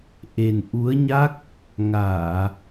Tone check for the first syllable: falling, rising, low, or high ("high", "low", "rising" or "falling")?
low